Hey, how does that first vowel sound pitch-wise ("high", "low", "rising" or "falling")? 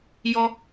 high